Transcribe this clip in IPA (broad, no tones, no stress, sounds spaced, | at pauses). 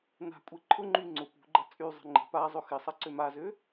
n a̤ kʷʼ e ǃʰ ʊ ŋ͡ǃ y ŋ͡ǀ ʊ p ṳ ɡ͡ǃ ɐ t͡sʼ y zˤ ə̤ ŋ͡ǃ ə̤ p a zˤ ʊ x ɪ sˤ ɐ ǀ ø m a z ø